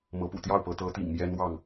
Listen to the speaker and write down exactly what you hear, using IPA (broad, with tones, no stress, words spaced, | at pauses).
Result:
mɤ˨˦pṵ˨˩ t̪jɑ˥˨ʊ̯pɤ˨˦t̪ɤ˨˦ t̪ḭ˨˩ŋ mjɛ˦nwɑ˥˨ŋ